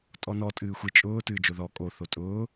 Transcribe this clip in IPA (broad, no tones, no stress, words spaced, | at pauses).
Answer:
tʼɔnɔ tʼɨːxʷɨ t͡ʃʼʊː tɨːd͡ʒoðɔ kʼo θotʼʊː